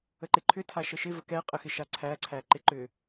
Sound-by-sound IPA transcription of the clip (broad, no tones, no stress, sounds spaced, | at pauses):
ə ǃ ɪ ǃʰ ʏ tʰ a ʃ ə ʃ ɪ v ə k ɛ qʼ ə x ɪ ʃ a ǀʰ æ ǀʰ æ ǃ ɪ ǃ ʏ